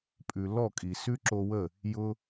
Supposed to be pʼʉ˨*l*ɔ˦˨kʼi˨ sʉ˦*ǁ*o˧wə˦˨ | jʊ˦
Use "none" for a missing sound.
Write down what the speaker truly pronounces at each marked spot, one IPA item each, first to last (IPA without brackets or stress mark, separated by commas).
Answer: l, ǁ